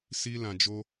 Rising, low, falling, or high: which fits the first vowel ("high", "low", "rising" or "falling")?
high